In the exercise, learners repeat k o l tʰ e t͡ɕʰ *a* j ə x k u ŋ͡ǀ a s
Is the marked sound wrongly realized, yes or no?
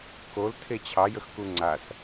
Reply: yes